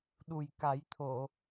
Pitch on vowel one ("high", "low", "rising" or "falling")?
low